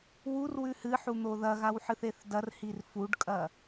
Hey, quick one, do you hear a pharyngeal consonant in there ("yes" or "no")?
yes